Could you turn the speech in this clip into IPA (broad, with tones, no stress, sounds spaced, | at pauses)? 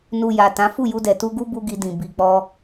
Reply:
n u˨ j a˨ t ã˨˦ f u˦˨ j u˧ d ɛ˨ t u˧ ɡ u˦ b u˦ ɡ i˧ d ĩ˨ b i˨ k͡p ɔ˧